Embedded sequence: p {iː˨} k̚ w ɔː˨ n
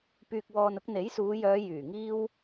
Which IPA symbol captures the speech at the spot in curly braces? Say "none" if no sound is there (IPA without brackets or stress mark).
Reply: yː˨